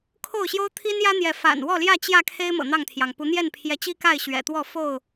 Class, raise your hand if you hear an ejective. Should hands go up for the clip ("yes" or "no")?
no